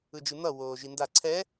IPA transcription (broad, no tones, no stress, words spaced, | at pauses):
ɯd͡ʒɯn̪ʌ woːʒinda ǀʰɛ